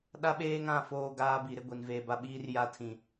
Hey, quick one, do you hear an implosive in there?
yes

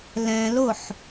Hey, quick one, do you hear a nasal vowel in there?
yes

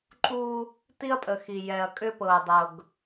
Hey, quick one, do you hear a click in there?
yes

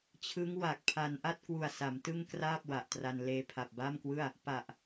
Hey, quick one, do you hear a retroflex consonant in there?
no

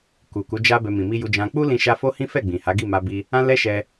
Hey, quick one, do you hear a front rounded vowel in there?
no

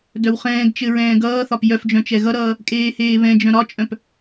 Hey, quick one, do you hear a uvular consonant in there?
yes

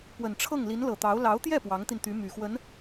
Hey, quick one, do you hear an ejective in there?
no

